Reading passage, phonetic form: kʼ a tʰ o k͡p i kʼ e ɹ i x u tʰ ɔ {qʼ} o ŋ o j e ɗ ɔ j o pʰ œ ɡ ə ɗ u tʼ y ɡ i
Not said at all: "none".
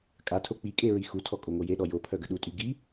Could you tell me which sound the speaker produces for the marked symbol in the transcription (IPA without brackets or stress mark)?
kʼ